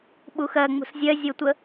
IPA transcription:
ɓuxɜ ŋ͡mṳszʲɜ zʲotʷə

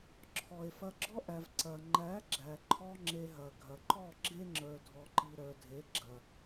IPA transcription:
ǁʰɔ˨e̯fɐ˧ɡ͡ǁɔ˦ʔæ˨v ǀɐ˨ ŋ͡ǃæ˨˦ɡ͡ǁæ˨ǃʰɔ˧ ŋ͡ǁe˧ɦɐ˨ ɡʱɐ˨ǃɔ˦˨ ɡ͡ǁe˦ŋ͡ǁə˞˨dʱɔ˨ǃi˨ ɾə˞˨dʱe˨˦ ɡ͡ǁɐ˨

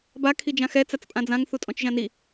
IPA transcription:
ba kʰid͡ʒãxɛ t͡sat͡spʼãd͡zãŋ θutʼɔ̃t͡ʃʒãni

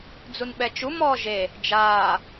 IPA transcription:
d͡zunɓɛt͡ʃu mɔːʒe | d͡ʒaː

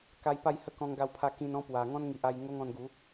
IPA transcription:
ka˧j pa˥˧jhə˦ kɔ̃˧ŋɡa˧wpʰa˧kĩ˧n ɔ̃˦pwa˨˩ ŋɔ̃˦nŋi˨ʔa˧j ŋo˦ŋɔ̃˧nɡu˨˦

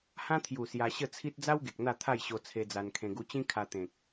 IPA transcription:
hã˦t̪ʰju˨˩ sja˧ɕə˥˧ t͡sʰi˦t̚ d͡za˦wɡe˨k̚ n̪a˥˧t̪ʰa˥˧jɕo˧ t͡sʰe˧d͡za˧nkʰẽ˧ ɡu˧t͡ɕĩ˦ kʰa˧t̪ẽ˨k̚

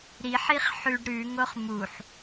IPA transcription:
ɾiħiχ ħʉɖ ɾʉŋoχ muħ

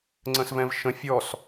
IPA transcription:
ŋ͡ǀə̃svɛ̃vʃə̃ fʲɔs

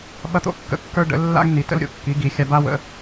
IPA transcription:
ɓɐ˦t̪o̰˦kːə̰˦kːə˞˦ ɖə̰˨˦lːa̰˦ɡ ni˨˦tə̰˦lɾʲo̰˦kːi˨˦ ɡi˨˦xʲa˦ ba˦wə̰˨˦

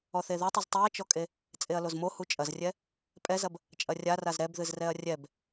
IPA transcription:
ɔθeðutˤɨz tˤiɐ̯t͡ʃɔkʼe | t͡sʼeɐ̯lozmo hut͡ʃʼɐzrʲɛ | pʼɛzɐb | t͡ʃʼɐrʲaraz ɾɛbðɨzrɛɐ̯ rʲɛb

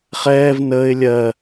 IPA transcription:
χɛːv nəːɪ̯ lʲɜ

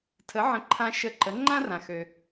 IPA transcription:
tʰə˩˥ʕə̃˩˥ǃʰã˧ ʃə˧ǃə˩˥ ŋ͡ǃã˥rã˩xø˩

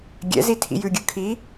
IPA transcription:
ɡʲɛ̰zi tʰḭjʉɡʲɯ kʰi

